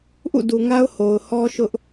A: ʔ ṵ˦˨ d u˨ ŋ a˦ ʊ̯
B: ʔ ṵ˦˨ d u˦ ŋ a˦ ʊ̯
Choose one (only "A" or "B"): A